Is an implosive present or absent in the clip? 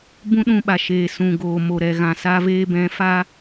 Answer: present